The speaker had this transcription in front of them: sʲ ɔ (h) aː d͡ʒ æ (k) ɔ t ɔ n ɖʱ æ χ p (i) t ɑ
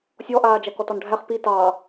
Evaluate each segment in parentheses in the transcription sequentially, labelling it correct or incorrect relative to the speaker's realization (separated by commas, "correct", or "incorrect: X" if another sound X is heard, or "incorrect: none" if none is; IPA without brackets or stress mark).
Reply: incorrect: ʔ, correct, correct